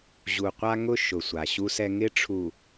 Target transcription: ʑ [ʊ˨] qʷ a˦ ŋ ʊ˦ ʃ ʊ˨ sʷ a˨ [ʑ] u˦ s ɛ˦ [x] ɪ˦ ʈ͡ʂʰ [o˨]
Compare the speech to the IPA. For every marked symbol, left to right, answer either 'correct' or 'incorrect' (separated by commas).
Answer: incorrect, incorrect, incorrect, incorrect